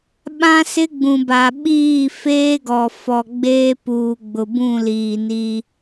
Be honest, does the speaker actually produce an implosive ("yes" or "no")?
yes